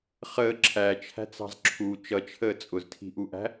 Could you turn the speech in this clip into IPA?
χəː ǁʰæt͡ʃʰæ̤t͡sɑ̤z ǁʰu t͡ʃʌt͡ʃʰəː t͡sʼʊztʰi̤ʔuʔæ̤

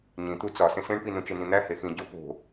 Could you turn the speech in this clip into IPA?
ɲĩ t̪ut͡sɒsẽs ẽɳpi nũt͡ʃenĩn̪æ hexĩ ɟo po̤

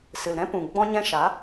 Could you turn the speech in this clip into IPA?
sɨ˨lɾɛ̃˦pũ˨ ɡ͡bɔ̃˧ɲɛ̃˧ʃa˨˦

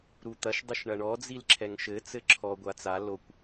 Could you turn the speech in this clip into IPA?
ɾut̪ɐʃ dˤɨʃɳɐɳɔ d͡zilǁʰɛŋʃɘ t͡sɘǁʰɔ ɡʷat͡sa lokʷ

